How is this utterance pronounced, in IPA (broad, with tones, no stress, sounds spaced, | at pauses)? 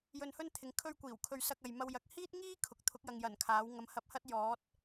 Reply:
j ɵ˧ n h ɵ˥ n t̪ʰ ɪ˨˧ ŋ kʰ ɵ˥ ɥ kʷ iː˨˩ w kʰ ɵ˧ ɥ s ɐ˧ k̚ ɐ˨ j m ɐ˧ w j ɐ˨˥ k̚ h iː˥ t̚ ŋ iː˥ kʰ ʊ˨ k̚ t̪ʰ ʊ˨˥ k̚ j ɐ˨ ŋ j ɐ˨˩ n kʰ aː˨˥ w ŋ ɐ˨˧ m h ɐ˧ p̚ h ɐ˥ t̚ j ɔː˨˥ t̚